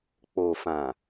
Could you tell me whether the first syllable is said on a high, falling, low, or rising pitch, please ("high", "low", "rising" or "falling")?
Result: low